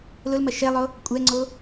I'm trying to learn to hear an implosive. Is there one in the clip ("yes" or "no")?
no